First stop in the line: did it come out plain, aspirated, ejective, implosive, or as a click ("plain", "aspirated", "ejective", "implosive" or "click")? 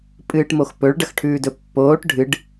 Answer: ejective